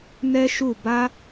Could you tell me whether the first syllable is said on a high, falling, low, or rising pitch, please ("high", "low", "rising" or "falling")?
high